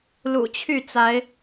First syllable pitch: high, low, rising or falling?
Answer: low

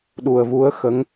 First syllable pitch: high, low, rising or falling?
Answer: low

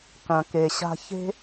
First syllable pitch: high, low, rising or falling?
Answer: low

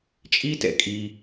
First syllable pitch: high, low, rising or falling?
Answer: high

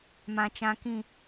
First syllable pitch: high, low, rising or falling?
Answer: low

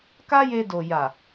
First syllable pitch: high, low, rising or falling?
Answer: high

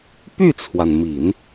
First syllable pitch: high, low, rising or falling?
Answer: falling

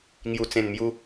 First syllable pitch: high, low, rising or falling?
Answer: low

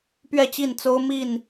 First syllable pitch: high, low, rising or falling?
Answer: falling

